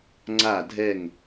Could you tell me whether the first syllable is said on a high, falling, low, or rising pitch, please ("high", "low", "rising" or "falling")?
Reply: falling